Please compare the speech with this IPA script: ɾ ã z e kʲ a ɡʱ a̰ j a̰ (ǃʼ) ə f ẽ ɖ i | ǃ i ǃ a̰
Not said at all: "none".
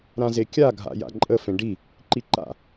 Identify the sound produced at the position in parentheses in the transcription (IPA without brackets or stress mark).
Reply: ǃʼ